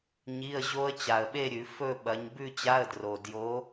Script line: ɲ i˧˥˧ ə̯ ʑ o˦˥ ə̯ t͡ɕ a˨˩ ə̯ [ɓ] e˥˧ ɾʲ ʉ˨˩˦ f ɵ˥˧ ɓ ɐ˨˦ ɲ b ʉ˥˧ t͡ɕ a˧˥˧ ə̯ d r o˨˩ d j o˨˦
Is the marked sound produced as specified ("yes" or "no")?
yes